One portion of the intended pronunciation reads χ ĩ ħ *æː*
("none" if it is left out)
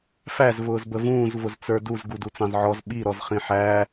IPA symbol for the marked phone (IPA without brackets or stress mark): æː